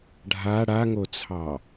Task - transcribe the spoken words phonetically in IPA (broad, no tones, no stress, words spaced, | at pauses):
ɖʱa ɽaŋot͡sʰɑ